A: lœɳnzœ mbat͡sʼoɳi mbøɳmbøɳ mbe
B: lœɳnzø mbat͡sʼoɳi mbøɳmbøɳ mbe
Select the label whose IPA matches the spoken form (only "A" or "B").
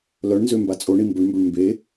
B